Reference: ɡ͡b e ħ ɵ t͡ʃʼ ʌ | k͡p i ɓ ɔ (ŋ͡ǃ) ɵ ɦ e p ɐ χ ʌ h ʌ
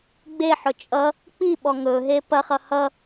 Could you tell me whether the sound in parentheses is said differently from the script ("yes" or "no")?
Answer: yes